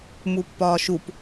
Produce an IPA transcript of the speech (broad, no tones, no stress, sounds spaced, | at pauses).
m u pː ɒː ʃ u p